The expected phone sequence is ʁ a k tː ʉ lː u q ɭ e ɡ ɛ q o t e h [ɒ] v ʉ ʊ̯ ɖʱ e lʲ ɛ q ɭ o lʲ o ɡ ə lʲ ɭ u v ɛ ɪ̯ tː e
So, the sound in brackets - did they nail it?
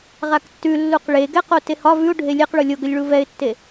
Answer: yes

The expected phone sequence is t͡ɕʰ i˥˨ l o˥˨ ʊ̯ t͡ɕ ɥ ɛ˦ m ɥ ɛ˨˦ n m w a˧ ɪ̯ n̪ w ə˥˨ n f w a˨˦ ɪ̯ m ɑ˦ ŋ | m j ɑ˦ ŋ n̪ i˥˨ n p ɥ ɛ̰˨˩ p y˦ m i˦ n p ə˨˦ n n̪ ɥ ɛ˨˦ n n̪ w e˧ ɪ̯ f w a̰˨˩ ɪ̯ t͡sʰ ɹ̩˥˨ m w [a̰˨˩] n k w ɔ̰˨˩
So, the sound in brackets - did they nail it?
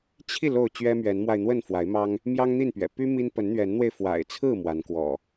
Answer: no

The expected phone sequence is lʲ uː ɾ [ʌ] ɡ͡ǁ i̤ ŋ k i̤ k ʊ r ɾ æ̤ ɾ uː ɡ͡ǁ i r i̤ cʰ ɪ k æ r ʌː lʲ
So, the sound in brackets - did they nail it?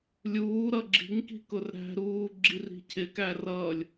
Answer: yes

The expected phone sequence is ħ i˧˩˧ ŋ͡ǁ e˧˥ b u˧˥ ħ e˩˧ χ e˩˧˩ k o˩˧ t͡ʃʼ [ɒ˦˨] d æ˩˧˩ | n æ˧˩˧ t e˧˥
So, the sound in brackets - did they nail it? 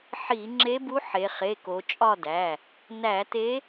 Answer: yes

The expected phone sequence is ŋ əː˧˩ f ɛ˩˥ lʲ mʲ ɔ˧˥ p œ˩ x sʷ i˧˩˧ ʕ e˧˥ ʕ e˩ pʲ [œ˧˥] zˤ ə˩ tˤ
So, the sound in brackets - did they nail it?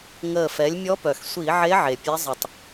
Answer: no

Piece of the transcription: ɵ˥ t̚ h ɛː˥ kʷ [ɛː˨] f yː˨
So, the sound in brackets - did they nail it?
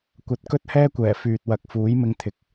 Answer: no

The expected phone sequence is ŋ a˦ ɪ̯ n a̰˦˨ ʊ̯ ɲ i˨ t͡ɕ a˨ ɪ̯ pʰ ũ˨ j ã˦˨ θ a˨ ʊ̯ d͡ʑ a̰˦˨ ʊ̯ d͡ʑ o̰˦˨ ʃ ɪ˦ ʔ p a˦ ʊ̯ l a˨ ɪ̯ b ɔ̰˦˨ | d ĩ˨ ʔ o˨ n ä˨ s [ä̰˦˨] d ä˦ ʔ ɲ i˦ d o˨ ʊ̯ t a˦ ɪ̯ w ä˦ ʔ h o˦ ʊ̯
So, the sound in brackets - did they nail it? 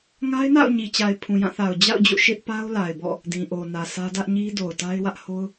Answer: no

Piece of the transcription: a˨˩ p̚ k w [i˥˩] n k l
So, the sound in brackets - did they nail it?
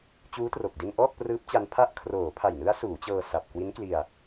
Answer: no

